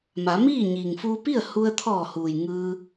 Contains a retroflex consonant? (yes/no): no